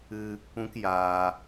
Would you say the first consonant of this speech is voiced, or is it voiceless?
voiceless